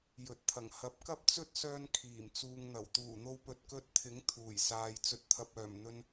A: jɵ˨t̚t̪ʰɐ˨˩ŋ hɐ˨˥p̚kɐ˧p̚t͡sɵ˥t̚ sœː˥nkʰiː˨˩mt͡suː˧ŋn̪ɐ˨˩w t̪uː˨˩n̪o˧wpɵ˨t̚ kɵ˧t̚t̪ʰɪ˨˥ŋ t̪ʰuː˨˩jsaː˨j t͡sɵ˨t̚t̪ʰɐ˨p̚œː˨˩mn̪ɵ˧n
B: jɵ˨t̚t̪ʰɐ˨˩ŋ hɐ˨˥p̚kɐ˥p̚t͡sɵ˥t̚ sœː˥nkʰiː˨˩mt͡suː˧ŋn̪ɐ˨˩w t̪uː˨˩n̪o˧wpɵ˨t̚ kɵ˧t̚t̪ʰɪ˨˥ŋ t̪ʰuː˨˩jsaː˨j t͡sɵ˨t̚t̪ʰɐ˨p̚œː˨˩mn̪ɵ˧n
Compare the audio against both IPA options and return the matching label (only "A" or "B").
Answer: B